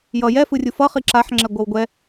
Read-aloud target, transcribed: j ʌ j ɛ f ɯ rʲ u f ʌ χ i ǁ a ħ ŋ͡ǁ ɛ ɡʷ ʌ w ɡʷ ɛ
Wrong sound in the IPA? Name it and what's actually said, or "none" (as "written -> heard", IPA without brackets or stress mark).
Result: none